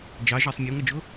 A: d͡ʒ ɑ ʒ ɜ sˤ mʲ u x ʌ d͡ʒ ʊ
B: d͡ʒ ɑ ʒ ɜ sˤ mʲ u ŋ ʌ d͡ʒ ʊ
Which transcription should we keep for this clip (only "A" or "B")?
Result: B